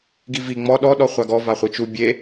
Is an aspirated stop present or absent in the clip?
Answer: absent